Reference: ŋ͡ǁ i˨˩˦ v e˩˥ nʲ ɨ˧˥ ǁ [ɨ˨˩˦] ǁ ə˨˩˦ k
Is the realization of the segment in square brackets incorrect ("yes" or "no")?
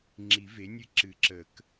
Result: no